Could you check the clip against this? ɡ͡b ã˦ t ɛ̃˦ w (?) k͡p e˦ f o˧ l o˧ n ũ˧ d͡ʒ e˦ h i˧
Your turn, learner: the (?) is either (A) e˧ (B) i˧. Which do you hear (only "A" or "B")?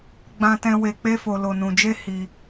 A